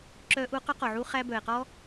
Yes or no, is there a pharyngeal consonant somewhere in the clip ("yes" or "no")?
yes